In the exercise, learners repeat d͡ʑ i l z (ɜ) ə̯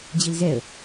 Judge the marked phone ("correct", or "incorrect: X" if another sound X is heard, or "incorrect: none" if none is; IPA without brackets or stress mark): incorrect: ɛ